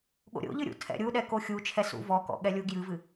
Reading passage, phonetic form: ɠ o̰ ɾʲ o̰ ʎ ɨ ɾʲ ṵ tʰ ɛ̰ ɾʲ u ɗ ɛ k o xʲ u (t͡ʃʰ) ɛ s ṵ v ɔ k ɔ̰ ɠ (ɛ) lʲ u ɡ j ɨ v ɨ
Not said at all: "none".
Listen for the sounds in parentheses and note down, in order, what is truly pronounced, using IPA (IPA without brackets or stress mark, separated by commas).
t͡ʃʰ, ɛ